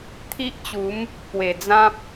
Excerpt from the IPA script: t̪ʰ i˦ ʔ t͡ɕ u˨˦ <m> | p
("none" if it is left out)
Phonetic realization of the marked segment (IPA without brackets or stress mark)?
m